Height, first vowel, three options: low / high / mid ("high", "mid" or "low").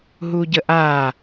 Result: high